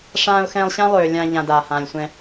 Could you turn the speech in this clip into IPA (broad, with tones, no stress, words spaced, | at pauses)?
ʂãː˧ʊ̯xɛ̃ː˧lˠɕã˦ lˠøː˧ lʲã˧ ʎã˧daː˨ hãː˧lʲsʷɛ̃˦